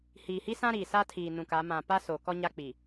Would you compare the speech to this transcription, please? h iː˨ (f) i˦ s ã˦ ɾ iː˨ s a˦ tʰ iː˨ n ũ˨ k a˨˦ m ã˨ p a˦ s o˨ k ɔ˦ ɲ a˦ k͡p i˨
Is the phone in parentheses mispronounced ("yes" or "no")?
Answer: yes